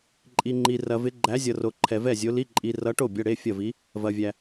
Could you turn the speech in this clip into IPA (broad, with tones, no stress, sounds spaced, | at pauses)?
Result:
ǃʼ i˧ ŋ͡ǃ i˧ r ɐ˧ v ɪ˧˥ ɡ͡ǃ æ˧˥ zʲ ʌ˧ r o˧ ǃʰ ɛ˧ v ɛ˥˨ zʲ o˧˥ l i˧˥˧ ǃʼ i˧ r ʌ˧˥ ʈ o˥˨ bʲ ʌ˧˥˧ ɽ e˧˥˧ fʲ ɐ˥˨ v i˧˥ | v ɐ˧ vʲ æ˧